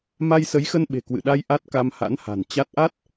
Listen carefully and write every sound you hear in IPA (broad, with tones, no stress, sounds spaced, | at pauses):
m a˧ j s ə˨˦ j x ə˧ n ɓ e̤˨˩ k w ɨ̰˧˨ ɗ a˧ j ʔ a˦˥ t̚ k a˧ m h a̰˧˥ n h a̤˨˩ n t͡ɕ a˦˥ t̚ ʔ a˦˥ t̚